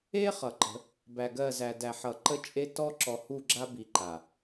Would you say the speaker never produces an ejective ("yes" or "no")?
no